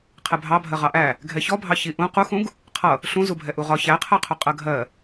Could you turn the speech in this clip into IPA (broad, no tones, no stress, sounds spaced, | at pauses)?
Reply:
qʰ ɛ bʱ ɑ bʱ ɜ ʁ ɑ ʔ æ | ɡʱ ɛ ç ɔ bʱ ɑ ç i ʔ ũ q u x ũ ɡ | qʰ ʌ | ɬ ũ z u bʱ ɛ ʔ u ʁ ɒ ç æ qʰ ɜ qʰ ʊ qʼ ɜ ɡʱ ɜ